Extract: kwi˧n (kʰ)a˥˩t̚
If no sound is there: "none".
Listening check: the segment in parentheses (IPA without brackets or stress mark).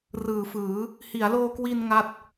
ŋ